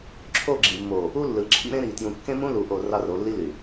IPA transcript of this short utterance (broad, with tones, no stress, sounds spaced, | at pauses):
ǁʰ o˦˨ ɡ͡ǁ ḭ˨ mː o˨ | u˦ lː ɯ˨ ǁʰ ḭ˦ ɾ ẽ˦ ɾ i˨ t j ũ˨ kː ẽ˦ m ũ˦ l u˨ ʔ o˨ r ɑ˦ r o˨˦ lː i˦ l y˨